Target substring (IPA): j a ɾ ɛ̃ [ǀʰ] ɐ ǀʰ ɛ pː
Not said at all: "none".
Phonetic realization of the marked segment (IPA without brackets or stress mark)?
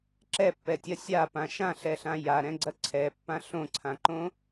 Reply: ɡ͡ǀ